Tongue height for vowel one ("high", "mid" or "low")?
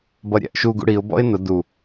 mid